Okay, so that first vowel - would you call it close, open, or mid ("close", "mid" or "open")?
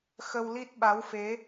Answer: mid